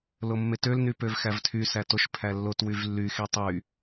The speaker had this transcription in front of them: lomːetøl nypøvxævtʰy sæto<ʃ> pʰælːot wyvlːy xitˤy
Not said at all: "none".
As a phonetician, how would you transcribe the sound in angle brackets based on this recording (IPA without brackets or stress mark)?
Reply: ʃ